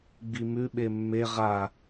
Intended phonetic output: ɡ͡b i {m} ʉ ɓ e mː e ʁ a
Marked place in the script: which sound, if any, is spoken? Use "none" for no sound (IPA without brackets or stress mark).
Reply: m